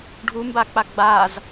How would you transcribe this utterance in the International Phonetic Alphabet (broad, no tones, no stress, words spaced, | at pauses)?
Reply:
ɖʱumbak͡pa ɡ͡baz